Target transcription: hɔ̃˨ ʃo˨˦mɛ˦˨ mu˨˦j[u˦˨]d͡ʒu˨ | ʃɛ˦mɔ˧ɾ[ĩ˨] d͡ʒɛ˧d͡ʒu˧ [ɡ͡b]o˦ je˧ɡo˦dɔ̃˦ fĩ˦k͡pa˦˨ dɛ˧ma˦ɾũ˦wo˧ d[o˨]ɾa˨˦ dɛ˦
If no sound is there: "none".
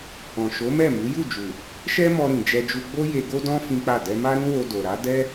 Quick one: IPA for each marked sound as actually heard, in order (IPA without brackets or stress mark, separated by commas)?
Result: u˦˨, ĩ˨, ɡ͡b, o˨